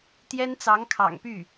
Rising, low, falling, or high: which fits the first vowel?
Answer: high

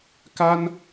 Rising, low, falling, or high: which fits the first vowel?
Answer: high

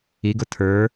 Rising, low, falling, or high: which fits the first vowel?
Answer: rising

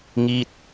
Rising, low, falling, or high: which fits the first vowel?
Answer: falling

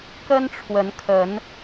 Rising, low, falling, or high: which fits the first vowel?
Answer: high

